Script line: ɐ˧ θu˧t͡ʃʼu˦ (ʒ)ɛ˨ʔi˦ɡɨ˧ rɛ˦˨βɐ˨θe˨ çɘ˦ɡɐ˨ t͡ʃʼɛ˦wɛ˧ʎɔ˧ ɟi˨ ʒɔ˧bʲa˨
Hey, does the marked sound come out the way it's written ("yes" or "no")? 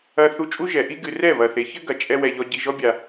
yes